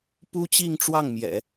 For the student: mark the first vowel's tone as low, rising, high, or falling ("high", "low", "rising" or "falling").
high